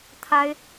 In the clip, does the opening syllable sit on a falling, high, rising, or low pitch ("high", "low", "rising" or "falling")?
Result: high